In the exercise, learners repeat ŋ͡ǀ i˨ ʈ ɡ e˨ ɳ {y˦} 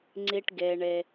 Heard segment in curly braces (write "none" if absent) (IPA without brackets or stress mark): e˦